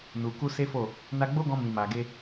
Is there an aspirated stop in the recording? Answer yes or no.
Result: no